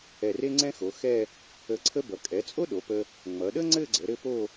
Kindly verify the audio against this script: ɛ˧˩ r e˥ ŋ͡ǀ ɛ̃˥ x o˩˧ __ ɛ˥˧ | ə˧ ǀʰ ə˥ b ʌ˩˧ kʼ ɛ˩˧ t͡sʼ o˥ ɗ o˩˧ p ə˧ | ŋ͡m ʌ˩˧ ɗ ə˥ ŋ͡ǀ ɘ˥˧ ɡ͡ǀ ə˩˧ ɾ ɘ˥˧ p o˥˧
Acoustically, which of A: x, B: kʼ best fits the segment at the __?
A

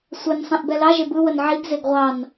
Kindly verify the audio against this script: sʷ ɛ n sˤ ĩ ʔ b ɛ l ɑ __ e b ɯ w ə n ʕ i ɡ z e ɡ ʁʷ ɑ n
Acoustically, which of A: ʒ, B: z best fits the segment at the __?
A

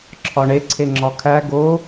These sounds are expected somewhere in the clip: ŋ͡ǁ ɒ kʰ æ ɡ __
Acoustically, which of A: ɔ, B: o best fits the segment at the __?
B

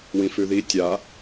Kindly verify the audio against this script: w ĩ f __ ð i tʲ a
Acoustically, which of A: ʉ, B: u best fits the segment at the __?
A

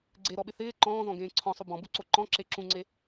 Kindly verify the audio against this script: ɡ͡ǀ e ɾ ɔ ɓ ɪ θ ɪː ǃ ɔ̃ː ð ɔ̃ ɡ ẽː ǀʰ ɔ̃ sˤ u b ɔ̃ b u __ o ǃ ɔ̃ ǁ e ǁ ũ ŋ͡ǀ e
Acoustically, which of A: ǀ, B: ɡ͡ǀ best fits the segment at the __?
A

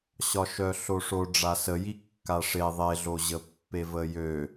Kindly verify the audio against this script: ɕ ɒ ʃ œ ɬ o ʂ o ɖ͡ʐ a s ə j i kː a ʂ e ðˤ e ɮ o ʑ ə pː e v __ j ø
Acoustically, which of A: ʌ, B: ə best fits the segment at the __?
B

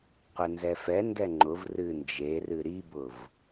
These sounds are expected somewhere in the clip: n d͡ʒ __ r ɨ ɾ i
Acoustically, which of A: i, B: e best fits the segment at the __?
B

